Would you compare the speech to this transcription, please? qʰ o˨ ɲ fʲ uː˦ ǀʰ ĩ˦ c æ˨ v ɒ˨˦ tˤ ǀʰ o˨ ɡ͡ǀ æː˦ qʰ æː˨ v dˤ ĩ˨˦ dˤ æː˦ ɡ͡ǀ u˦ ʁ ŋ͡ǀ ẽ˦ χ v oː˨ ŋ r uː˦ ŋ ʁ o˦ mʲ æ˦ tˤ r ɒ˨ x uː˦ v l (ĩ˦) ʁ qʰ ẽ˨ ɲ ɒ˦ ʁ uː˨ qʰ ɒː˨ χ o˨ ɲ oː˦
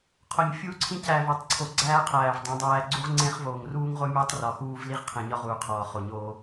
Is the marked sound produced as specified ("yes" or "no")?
no